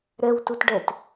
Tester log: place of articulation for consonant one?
alveolar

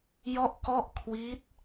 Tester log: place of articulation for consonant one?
palatal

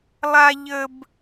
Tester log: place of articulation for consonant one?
alveolar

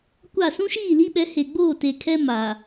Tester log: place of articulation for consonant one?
velar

